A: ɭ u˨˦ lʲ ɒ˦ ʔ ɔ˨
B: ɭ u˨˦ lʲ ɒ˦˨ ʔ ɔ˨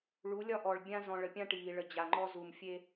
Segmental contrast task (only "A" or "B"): A